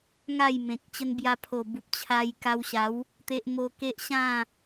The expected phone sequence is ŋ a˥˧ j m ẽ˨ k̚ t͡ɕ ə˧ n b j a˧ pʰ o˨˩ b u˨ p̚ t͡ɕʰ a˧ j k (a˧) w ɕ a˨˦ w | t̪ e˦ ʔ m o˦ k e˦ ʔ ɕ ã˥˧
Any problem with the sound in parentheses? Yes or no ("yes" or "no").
no